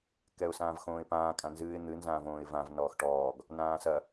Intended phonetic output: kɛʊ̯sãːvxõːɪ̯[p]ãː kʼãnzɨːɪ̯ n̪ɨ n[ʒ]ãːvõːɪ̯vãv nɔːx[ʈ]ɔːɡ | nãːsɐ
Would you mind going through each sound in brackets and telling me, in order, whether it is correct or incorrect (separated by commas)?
correct, incorrect, correct